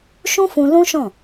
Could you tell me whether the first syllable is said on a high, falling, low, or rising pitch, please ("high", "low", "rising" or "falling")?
high